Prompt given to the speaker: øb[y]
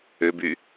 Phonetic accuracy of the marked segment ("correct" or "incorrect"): correct